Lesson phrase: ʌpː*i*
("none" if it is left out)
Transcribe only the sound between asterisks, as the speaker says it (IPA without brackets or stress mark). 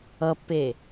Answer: e